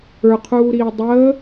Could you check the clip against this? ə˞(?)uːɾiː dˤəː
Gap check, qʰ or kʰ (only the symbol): qʰ